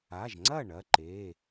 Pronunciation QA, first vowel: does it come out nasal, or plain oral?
oral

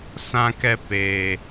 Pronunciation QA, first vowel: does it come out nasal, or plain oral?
nasal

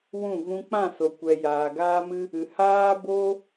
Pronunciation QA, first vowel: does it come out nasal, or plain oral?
nasal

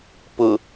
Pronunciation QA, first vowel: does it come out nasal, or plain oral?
oral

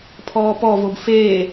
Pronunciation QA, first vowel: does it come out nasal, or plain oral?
oral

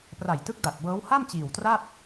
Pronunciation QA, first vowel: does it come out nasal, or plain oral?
oral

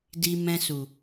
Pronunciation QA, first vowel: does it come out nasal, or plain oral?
oral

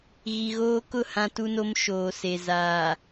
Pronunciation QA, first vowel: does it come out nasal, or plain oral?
oral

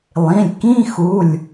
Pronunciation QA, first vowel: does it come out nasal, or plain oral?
nasal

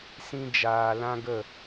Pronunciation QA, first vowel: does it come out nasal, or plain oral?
nasal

